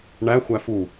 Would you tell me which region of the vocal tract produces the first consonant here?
retroflex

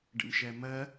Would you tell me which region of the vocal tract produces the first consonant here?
retroflex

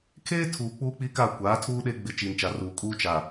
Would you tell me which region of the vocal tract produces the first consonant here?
velum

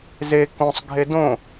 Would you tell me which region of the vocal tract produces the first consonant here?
tongue tip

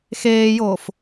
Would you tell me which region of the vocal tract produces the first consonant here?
velum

